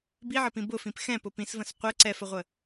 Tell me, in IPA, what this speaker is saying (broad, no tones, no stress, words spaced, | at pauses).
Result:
biʕəpĩ bʊfĩp xɛ̃pʊ pĩsvə̃s qʷɛ ǀɛfəʁʷə